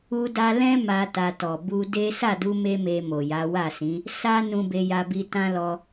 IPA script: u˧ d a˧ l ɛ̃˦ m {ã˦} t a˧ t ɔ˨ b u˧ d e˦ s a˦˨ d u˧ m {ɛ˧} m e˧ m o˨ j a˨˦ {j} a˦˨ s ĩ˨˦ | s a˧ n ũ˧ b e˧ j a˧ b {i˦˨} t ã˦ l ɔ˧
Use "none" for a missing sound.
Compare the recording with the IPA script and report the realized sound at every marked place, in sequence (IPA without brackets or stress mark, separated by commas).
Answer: a˦, e˧, w, i˧